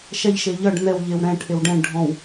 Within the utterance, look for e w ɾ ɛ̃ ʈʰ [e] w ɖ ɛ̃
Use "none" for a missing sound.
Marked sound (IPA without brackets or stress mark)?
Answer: e